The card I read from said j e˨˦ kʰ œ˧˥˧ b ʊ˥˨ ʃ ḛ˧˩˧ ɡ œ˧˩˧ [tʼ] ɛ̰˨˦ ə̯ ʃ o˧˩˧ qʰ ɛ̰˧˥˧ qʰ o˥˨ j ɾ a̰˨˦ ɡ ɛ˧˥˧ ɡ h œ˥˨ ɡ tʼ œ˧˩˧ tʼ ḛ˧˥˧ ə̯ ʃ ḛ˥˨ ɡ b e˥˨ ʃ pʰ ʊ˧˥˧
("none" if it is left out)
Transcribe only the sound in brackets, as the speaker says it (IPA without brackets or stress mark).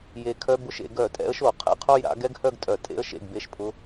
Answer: tʼ